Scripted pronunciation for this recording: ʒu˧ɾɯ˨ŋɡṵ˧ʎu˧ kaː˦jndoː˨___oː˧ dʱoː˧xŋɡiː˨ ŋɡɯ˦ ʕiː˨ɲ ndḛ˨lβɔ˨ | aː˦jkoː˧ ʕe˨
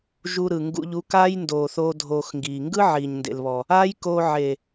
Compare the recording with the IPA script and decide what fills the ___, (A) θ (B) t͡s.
A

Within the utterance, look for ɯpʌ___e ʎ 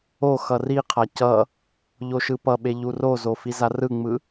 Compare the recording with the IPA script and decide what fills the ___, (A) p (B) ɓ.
B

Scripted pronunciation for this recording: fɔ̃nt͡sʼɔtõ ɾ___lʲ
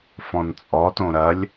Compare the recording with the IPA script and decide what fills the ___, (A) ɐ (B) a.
A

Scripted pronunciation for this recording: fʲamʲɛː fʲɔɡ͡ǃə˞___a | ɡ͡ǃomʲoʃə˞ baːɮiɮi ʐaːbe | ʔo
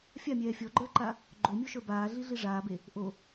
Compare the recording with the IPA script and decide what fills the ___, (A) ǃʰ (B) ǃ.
B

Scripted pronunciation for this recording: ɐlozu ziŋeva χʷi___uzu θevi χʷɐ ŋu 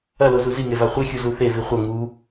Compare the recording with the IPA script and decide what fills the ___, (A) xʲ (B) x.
A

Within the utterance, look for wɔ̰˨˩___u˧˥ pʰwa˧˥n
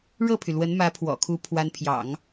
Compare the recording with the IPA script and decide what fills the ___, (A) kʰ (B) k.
A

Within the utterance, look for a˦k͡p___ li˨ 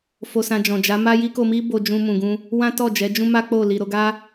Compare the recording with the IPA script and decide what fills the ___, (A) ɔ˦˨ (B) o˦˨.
B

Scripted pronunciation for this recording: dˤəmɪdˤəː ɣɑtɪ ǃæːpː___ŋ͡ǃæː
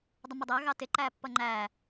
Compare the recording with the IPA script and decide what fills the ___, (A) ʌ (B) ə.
A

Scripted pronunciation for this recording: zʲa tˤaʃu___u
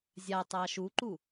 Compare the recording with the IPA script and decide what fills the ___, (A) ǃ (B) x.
A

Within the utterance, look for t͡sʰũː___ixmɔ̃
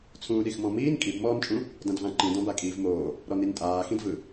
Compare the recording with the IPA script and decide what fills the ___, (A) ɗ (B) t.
A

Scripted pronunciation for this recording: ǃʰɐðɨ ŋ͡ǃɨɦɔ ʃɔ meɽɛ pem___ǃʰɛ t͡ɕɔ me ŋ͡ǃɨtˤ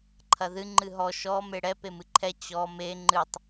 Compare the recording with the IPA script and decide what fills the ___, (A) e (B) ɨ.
B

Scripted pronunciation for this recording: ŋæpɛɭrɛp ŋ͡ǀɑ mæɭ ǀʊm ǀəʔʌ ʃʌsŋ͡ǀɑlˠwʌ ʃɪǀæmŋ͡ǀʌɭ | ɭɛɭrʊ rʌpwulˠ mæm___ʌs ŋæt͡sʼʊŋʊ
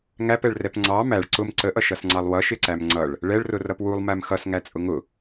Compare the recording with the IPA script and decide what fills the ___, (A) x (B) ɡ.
A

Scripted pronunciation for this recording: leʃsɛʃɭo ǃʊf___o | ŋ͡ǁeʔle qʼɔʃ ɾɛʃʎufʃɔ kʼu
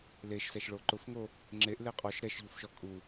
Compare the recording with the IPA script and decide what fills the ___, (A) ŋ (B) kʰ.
A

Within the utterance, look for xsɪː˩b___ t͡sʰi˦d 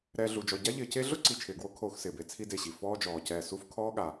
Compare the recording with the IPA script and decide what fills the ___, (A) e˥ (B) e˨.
B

